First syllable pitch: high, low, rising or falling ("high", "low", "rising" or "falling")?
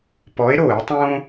rising